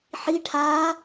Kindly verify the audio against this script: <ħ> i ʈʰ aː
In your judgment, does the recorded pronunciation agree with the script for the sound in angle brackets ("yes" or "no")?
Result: yes